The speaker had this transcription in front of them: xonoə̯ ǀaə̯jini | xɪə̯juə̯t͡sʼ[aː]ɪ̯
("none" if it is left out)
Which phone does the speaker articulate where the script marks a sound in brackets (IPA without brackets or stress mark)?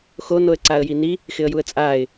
aː